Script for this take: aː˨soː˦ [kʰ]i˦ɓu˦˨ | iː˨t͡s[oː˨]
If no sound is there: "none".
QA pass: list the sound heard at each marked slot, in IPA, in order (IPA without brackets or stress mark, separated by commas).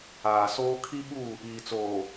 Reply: kʰ, oː˨